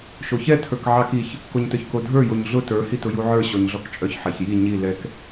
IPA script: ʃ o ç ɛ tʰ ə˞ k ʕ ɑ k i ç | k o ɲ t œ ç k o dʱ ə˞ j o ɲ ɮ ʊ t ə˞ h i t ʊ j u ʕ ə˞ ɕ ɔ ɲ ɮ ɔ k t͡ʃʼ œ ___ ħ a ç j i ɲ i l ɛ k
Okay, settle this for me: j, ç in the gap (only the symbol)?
ç